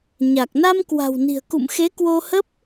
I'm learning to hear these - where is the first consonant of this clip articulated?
palate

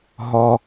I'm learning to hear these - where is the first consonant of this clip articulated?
throat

